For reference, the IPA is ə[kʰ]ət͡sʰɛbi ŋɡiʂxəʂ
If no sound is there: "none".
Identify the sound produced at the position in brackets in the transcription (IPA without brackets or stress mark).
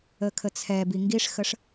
kʰ